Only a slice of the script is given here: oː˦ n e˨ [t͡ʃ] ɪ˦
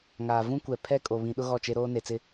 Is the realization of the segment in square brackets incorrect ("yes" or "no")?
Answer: yes